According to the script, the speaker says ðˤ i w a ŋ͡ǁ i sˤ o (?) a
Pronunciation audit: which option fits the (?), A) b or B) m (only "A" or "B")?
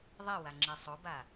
A